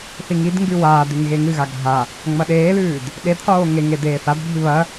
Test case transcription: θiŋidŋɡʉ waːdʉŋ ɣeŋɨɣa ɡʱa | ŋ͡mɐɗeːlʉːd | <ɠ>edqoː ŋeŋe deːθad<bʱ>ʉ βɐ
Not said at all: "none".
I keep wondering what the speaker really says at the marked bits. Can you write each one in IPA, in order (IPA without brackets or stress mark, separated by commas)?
ɗ, bʱ